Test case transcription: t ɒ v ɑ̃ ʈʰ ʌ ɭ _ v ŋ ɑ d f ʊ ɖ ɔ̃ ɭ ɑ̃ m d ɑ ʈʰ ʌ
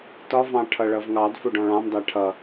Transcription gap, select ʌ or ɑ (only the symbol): ʌ